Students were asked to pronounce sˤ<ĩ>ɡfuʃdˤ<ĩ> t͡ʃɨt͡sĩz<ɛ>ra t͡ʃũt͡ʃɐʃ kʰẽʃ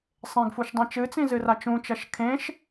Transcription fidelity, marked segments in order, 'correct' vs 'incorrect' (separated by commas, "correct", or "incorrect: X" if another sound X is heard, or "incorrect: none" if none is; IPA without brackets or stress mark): incorrect: ẽ, incorrect: ẽ, incorrect: ɨ